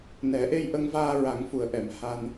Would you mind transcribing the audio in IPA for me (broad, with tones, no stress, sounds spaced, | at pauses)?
n ɛ˨˩˦ ʔ e˧ j ʔ ə˧ ŋ v aː˧ ɹ a˨˩˦ ŋ f u˨˩ ə̯ ʔ ɛ˨˩˨ m h a˧ n